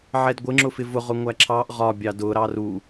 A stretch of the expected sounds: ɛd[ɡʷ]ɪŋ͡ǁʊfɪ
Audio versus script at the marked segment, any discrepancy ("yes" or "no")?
no